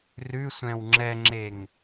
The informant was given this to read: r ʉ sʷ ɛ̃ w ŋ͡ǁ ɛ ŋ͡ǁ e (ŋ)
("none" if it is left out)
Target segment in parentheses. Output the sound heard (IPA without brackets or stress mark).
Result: ŋ